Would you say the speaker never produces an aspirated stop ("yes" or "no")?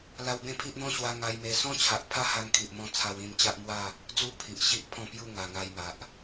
no